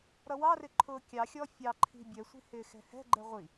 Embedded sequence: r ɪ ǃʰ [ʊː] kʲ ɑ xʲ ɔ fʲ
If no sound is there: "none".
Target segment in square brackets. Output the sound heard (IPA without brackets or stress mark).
ʊː